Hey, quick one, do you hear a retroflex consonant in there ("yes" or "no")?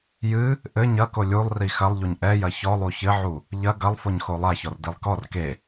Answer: no